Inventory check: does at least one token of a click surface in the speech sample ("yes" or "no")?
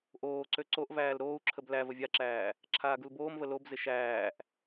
yes